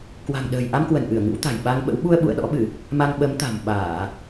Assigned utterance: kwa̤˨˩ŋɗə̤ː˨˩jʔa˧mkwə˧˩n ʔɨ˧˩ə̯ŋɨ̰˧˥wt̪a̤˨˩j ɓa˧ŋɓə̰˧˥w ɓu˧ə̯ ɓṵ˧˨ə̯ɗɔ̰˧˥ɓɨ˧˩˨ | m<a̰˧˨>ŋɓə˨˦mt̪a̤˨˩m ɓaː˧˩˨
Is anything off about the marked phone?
yes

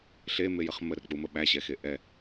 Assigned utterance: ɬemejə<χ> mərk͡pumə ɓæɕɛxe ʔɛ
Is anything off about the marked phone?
no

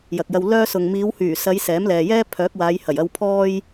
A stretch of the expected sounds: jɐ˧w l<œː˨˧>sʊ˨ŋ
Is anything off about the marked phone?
yes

